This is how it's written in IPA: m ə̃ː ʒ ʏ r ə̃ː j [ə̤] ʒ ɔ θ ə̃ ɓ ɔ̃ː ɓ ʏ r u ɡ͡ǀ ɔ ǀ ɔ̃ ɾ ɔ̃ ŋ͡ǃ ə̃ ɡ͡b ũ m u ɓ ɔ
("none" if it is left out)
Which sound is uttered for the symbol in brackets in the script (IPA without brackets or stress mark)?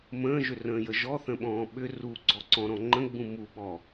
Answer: ə